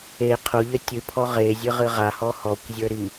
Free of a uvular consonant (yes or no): no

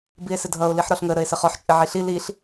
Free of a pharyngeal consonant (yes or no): no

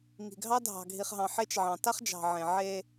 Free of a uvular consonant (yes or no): no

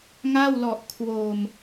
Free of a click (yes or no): yes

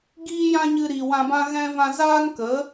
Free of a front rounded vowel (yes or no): yes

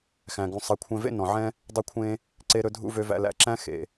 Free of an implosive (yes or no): yes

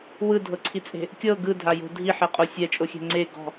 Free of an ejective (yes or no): no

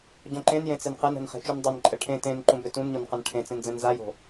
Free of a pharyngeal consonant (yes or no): yes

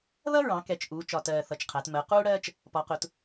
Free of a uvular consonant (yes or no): no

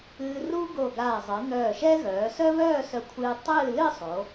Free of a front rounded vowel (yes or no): no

